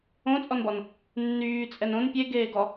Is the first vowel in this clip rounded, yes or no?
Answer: yes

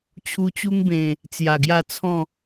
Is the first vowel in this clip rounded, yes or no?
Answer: yes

